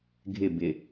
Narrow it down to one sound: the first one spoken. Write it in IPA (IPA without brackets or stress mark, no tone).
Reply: ɡʱ